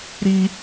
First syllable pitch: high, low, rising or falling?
high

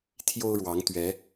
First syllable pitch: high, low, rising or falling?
high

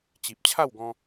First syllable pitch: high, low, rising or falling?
low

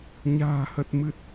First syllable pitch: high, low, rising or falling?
low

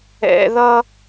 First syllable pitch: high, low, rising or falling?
low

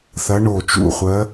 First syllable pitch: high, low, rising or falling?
rising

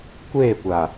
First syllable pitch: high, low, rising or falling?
falling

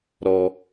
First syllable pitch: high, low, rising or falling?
low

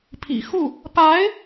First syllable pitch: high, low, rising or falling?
low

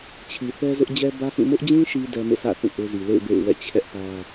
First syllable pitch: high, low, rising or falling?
low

